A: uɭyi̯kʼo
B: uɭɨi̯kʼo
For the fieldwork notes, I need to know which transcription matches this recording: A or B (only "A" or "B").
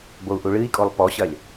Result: B